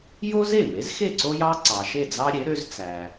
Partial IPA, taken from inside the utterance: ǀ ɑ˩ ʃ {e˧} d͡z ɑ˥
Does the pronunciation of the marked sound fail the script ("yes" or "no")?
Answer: yes